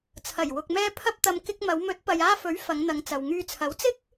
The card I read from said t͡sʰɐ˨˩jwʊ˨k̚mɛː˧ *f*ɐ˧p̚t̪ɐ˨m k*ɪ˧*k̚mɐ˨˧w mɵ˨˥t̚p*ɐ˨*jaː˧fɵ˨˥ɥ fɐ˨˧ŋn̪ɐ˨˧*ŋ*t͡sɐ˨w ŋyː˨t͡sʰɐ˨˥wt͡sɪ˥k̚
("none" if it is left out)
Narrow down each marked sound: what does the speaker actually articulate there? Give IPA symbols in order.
pʰ, ɪ˧, ɐ˨, ŋ

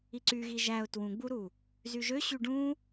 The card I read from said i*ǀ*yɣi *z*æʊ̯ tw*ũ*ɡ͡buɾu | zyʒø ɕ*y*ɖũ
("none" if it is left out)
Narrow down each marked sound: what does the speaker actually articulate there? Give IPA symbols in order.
ǀ, ʒ, ũ, y

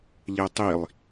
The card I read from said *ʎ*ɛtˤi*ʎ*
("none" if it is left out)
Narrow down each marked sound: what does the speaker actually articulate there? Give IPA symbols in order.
ʎ, lˠ

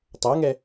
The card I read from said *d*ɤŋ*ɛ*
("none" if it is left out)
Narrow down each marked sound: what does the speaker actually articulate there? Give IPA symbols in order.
tˤ, ɛ

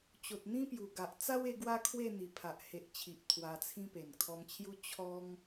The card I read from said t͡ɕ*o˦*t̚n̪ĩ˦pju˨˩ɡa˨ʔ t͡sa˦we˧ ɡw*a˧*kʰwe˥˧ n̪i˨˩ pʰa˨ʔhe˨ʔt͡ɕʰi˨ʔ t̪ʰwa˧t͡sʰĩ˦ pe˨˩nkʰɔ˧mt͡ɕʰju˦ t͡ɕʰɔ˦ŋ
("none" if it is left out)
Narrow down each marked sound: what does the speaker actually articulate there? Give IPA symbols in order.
o˨, a˦

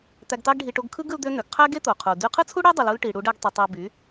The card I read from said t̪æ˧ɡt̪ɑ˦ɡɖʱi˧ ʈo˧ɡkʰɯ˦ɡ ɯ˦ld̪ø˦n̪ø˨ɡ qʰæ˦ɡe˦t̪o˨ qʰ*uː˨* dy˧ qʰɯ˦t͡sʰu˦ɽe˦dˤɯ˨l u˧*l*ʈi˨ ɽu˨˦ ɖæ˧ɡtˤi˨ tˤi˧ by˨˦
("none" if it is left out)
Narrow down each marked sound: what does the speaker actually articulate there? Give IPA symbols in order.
u˨, l

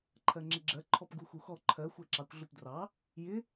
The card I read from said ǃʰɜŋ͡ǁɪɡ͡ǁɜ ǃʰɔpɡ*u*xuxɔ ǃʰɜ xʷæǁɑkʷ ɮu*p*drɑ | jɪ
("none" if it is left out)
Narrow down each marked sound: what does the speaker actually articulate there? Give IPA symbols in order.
u, p

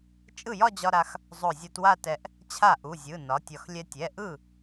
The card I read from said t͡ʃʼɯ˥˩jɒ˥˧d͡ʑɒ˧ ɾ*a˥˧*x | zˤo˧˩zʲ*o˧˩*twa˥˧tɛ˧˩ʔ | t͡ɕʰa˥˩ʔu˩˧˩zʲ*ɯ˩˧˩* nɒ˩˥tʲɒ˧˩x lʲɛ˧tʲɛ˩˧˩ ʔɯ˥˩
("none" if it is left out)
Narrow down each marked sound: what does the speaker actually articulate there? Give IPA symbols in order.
a˧, o˧, ɯ˩˧˩

